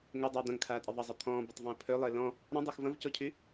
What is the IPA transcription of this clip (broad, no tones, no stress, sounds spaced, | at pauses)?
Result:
ŋ ʊ dˤ aː d̪ ɐ̃ ŋ kʰ aː tʼ ɪ ðˤ ɐ zˤ ɐ t̪ʰ ɔ̃ː b ʊ tˤ v ɔ̃ o̯ pʰ ø lˠ ɪː l ɔ̃ | ɾ ɔ̃ dˤ y x v ɐ̃ v c ɔ cʰ y